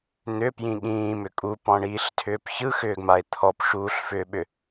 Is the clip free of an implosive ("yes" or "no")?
no